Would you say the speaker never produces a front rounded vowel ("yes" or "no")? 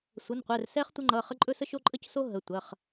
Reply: yes